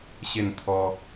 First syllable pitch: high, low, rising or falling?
falling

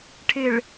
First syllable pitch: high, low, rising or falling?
low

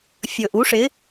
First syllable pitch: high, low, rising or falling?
low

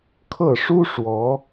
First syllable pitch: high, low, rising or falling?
falling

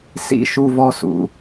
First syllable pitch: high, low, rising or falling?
falling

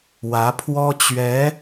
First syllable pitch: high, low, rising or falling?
rising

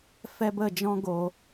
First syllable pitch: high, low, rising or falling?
high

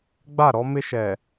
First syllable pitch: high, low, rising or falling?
falling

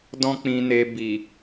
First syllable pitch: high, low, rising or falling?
high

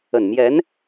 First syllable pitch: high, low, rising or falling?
low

